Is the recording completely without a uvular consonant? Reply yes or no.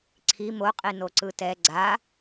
no